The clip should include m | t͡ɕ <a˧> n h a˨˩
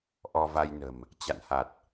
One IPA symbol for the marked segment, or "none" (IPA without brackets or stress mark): a̰˧˨